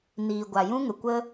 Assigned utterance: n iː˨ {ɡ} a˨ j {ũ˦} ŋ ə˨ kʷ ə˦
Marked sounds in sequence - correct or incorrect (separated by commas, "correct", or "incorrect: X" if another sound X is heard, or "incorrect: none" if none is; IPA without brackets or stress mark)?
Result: incorrect: ɡʷ, correct